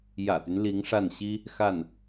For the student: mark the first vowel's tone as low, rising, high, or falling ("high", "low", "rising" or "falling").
low